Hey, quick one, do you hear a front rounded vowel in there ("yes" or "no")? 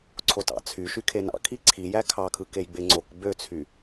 yes